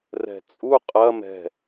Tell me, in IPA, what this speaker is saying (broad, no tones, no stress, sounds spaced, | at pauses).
r ɛ̤ t͡sʼ u qʼ ɐ m ɛ̤